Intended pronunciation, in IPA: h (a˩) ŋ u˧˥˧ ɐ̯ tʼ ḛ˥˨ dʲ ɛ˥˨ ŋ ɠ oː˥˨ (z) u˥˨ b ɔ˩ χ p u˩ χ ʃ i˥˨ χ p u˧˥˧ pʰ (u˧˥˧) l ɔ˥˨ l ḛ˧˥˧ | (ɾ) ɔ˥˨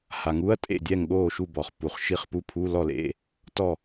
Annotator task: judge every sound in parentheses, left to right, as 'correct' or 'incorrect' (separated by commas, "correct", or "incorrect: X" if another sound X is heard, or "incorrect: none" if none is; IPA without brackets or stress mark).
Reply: correct, incorrect: ʃ, correct, incorrect: t